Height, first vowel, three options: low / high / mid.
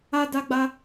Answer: low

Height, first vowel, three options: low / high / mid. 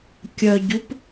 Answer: mid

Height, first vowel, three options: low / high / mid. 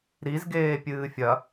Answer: high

